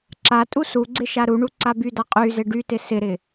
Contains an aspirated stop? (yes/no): no